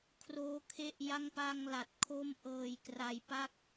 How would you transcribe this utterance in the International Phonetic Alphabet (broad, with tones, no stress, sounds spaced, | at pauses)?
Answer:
kʰ r oː˦˥ kʰ e˥˩ ʔ j a˥˩ ŋ p a˧ ŋ l a˨˩ t̚ kʰ o˥˩ m ʔ ɤː˧ j k r a˧ j p a˥˩ k̚